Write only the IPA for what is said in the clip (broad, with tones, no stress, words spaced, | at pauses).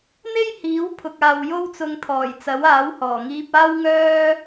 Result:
n̪e˥jhiː˨˥w pʰʊ˨k̚aː˨wjo˥w t͡sʊ˧ŋt̪ʰɔː˨˩jt͡sɐ˨˥waː˨˥w hɔː˨˩ŋiː˧p̚aː˥w ŋœː˥